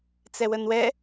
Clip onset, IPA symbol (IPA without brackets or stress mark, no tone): t͡s